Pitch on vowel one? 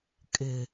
low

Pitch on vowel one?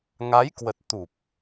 rising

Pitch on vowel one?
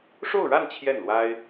falling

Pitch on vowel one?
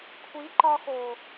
rising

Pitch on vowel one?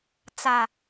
low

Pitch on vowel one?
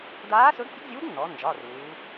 rising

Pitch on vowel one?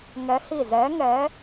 rising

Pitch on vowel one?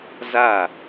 falling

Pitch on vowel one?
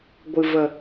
low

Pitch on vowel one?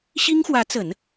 high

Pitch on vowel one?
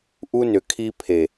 high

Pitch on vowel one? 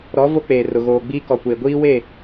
rising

